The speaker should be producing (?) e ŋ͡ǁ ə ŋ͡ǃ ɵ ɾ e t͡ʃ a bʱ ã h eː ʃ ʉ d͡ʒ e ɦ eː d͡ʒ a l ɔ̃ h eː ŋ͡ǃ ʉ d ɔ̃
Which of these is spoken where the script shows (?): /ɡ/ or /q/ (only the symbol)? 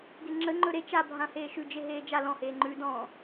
ɡ